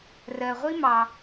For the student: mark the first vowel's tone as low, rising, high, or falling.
low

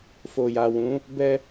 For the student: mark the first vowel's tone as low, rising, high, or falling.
low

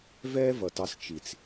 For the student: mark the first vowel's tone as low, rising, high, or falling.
high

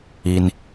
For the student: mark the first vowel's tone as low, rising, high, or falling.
low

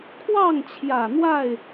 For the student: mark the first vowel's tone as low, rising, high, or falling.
falling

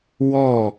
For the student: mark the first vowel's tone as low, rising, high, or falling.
falling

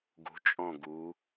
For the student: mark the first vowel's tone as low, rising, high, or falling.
rising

